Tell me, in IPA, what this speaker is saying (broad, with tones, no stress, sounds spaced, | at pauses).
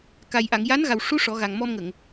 k a˧ j ʔ a˨˩˨ ŋ j a˧˥ n ɣ a˨˩ w ʂ u˧˥ ʂ ɔ˨˩˦ ɣ a˨˩ ŋ m ɔ˧ m ŋ ə˨˩˨ ŋ